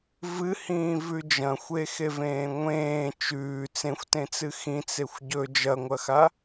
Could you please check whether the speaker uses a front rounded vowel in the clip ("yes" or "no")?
no